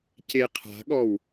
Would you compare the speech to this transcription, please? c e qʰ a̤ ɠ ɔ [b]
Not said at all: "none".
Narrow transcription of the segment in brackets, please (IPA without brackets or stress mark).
w